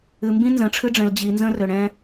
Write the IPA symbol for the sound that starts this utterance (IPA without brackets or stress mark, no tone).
ɨ